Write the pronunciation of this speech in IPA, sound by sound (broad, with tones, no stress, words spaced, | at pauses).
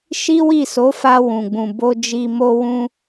ʃi˦wi˦˨so˨˦fa˧ wũ˨ɡ͡bũ˨bo˧ d͡ʒi˨mo˧wũ˧